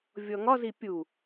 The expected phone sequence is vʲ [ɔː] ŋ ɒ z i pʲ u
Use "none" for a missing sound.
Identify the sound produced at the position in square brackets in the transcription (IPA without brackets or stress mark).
ɔ